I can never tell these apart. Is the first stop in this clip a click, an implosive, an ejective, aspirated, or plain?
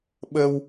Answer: implosive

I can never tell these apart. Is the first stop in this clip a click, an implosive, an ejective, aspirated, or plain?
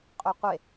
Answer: ejective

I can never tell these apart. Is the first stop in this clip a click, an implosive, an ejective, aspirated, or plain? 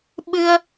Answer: implosive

